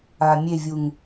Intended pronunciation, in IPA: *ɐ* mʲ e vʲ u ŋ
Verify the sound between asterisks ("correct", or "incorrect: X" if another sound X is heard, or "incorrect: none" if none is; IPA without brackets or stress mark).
incorrect: a